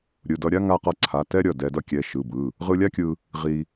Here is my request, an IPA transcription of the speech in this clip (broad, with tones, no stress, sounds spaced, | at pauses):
ɾʲ ɯ˩˧˩ d ʌ˧ ɾʲ a˥ ŋ a˧ q ʌ˧ ǀʰ a˩˧˩ t ɛ˥ ɾʲ ʌ˩˧˩ d ɛ˧ d ʌ˥ kʲ ɛ˩˧˩ ʃ ɯ˩˧˩ b ɯ˩˧˩ | ʁ ɯ˧ lʲ a˥ kʲ ɯ˧ | ʁ i˧